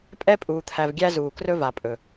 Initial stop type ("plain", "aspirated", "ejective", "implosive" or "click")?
ejective